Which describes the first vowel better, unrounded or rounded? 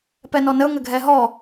unrounded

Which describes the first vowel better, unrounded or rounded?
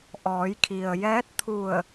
rounded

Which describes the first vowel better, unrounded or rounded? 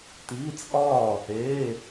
unrounded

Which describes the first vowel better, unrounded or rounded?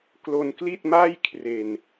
rounded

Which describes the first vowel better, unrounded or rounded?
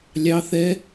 unrounded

